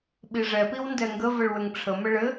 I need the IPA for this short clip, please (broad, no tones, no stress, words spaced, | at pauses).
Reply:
ɓiʐɛpiw ndɛŋɡəvəɭ wɘŋʈ͡ʂʰə məɭɘ